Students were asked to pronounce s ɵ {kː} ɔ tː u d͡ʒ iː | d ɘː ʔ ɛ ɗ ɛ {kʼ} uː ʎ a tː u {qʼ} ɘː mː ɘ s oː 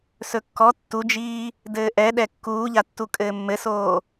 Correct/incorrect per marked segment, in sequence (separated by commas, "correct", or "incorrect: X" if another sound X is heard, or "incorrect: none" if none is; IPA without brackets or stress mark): correct, incorrect: kː, incorrect: kʼ